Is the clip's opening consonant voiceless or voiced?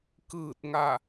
voiceless